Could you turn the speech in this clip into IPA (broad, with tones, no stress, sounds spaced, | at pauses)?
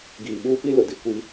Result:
ɡ iː˨ ɓ uː˦ p i˦ l ʊ˨ d i˦ kʷ i˦